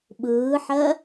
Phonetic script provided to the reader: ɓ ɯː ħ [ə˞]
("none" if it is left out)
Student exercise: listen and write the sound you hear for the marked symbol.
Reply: ɜ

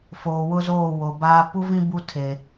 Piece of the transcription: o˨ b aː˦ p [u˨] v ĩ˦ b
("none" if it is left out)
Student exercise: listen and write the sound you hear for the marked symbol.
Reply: u˦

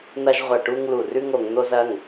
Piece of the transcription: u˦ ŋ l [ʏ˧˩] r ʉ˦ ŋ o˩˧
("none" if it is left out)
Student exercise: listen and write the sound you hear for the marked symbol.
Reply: u˧˩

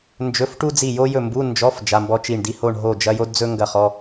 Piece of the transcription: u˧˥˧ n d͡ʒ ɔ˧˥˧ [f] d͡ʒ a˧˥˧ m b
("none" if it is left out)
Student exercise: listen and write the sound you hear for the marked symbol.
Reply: f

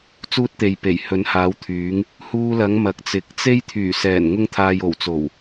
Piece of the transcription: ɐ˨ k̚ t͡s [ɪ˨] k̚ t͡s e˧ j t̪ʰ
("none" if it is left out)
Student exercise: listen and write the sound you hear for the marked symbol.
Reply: ɪ˨˥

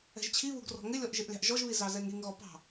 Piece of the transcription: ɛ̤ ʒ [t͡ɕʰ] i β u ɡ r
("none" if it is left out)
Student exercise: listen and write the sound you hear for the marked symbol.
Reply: t͡ɕʰ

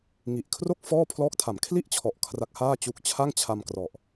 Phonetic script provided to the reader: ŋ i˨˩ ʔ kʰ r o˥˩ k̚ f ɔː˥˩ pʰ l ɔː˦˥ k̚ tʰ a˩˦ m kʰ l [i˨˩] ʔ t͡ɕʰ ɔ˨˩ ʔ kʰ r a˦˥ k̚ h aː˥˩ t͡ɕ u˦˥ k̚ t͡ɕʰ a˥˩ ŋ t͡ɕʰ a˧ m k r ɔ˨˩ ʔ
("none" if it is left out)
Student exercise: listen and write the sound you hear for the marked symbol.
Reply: i˥˩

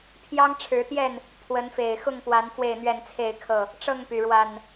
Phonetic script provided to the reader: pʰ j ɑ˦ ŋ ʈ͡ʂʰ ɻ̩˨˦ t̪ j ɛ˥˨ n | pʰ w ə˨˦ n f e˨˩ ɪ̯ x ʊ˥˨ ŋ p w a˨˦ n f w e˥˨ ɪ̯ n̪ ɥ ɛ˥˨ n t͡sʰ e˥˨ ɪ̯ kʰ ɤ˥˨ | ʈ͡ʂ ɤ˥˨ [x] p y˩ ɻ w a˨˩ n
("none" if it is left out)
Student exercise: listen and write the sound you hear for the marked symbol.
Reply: ŋ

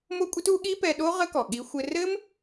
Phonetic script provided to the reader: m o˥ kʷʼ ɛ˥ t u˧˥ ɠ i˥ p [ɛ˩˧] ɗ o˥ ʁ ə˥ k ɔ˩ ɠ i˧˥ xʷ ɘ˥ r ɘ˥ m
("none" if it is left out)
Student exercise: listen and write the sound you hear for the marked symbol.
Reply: ɛ˧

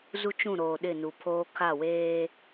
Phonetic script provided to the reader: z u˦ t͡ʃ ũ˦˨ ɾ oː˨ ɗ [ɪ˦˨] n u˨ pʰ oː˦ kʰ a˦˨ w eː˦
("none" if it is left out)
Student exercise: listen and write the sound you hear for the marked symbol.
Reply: ɪ˦˨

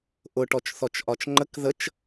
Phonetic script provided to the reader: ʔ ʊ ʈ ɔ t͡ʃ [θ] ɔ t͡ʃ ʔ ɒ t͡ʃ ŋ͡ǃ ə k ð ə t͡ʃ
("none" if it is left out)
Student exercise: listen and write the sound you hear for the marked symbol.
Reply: θ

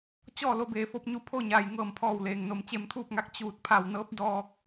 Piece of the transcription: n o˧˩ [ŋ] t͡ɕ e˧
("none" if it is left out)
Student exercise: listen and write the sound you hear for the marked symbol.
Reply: m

